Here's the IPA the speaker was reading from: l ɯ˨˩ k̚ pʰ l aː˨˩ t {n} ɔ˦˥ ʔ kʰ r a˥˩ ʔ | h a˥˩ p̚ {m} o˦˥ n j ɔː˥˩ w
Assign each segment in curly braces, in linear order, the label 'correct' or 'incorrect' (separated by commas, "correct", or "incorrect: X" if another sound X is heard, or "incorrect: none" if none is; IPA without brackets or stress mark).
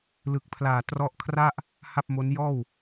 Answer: incorrect: r, correct